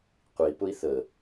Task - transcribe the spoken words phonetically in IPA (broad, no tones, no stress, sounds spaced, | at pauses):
qʷ i p ʊ i̯ θ ə